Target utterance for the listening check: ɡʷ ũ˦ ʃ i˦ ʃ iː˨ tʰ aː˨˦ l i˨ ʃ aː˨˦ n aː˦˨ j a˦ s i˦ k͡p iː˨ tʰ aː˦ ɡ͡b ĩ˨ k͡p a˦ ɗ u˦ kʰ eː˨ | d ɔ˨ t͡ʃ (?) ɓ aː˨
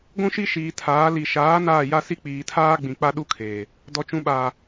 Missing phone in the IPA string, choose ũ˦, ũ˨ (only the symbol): ũ˨